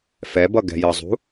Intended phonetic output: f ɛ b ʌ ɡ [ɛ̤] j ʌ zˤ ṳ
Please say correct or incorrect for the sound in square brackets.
correct